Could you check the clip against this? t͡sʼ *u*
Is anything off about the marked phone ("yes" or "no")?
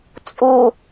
no